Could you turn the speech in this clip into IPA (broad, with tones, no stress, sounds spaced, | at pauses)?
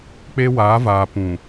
k͡p e˦ w aː˨˦ v aː˨ p ũ˨